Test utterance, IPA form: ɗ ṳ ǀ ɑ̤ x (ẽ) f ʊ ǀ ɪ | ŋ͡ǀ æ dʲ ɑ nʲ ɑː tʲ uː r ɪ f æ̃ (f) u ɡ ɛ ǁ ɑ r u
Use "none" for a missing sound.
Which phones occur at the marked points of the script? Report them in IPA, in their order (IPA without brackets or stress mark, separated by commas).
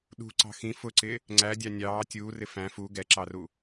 ĩ, f